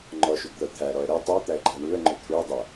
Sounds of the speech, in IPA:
ŋ͡ǃɔʃʏɡt̪ɤ t̪ʰæɾɔə̯ ɾɤ tˤæt̪æə̯ɡ͡ǃæ ɳuə̯ŋ͡ǃʏ t̪ʰʏə̯dˤʏə̯

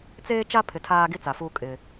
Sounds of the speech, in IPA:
t͡seː˦t͡ʃa˦pʰɪ˨ tʰaː˦ɡi˦t͡sa˨fuː˦ kʼɪ˦

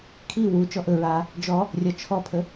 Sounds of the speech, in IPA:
kʰi wu t͡ʃɔʔɵɹaː | d͡ʒɔ | rʲɒt͡ʃʰɔpʰə

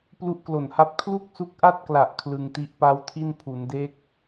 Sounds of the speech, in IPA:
plu˦˥ʔklo˨˩nha˦˥p̚ kʰlu˥˩k̚su˦˥k̚ʔa˥˩t̚kla˨˩ʔ kʰlɯ˧ŋti˦˥ʔ pa˦˥wtʰi˥˩npʰu˩˦nde˦˥k̚

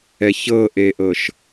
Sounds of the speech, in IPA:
ɛçɤʔeʔɤʃ

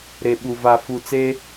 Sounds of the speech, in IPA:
ɾe˨ɓu˨va˨fu˨ t͡se˦

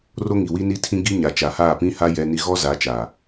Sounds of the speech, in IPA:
ro˦ ŋi˨wi˦ ni˦tʰĩ˦ ɡi˦ ɲa˨t͡ʃa˨haː˦˨ pĩ˦ha˦ jɛ˦ni˦ ɣɔ˦ za˨˦t͡ʃa˨

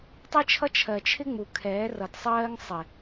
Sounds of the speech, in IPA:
tˤi˦t͡ʃʰʌ˦ t͡ʃʰɜ˨t͡ʃʰɪ˦ŋ͡mu˨ kʰɛː˨˦rʌ˨dsˤɜː˦ŋ sˤɪ˨

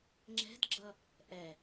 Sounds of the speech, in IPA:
ŋ͡ǁɛ̤dɡ͡ǁʌ | ʔɛ

